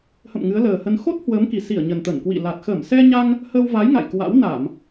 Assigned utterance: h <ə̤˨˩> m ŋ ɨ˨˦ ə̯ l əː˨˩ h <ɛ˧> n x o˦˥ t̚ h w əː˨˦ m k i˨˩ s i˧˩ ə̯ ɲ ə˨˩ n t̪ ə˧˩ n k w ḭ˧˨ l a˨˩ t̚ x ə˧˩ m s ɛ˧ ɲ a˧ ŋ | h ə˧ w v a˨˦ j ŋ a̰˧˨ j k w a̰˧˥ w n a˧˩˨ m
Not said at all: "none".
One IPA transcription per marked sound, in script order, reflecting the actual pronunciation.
ə̰˧˨, ə˧

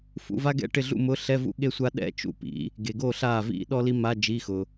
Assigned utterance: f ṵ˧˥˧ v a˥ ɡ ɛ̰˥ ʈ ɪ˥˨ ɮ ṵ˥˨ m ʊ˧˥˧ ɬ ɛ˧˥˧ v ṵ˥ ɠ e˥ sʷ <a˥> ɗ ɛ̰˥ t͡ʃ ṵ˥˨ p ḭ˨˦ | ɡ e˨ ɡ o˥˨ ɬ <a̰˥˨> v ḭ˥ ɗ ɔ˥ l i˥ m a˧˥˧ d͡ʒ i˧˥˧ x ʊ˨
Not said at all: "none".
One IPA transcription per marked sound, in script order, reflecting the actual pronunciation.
a˥, a˥˨

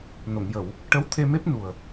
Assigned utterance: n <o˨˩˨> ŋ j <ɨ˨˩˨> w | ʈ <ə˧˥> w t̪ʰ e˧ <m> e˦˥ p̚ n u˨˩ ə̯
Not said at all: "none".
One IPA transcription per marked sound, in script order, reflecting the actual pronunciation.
o˨˩˨, ə˨˩˨, ə˧˥, m

